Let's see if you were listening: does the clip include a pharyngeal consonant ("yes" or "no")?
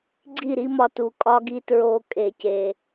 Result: no